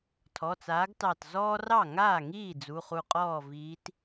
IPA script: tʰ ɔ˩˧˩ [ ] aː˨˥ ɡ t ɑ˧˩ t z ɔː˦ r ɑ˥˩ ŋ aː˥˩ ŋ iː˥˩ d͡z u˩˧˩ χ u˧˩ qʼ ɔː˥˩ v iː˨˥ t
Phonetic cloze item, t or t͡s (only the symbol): t͡s